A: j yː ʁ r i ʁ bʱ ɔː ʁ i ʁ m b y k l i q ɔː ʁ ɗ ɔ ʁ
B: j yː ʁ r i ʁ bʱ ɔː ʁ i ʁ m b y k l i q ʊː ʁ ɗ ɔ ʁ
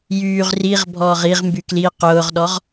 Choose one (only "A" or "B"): B